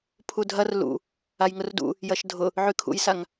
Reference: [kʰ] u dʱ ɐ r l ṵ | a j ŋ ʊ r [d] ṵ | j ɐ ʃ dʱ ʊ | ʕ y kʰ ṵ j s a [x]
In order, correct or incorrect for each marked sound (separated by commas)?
incorrect, correct, incorrect